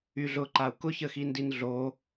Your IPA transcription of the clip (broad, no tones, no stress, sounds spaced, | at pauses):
y ɮ ʊ ǃ a u̯ k ʊ ç ə x i n d i n ɮ o